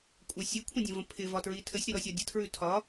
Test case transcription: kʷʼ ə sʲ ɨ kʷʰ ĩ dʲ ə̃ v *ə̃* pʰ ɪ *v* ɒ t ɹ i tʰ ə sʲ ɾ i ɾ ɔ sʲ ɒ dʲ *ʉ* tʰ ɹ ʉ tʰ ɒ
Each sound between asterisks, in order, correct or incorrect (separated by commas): correct, correct, incorrect